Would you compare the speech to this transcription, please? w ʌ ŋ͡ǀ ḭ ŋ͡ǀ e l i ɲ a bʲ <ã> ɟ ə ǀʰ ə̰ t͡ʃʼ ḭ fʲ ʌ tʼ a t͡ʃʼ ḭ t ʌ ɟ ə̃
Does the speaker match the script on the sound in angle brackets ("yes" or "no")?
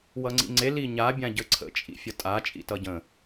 yes